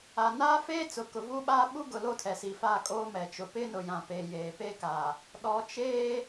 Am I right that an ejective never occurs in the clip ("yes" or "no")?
no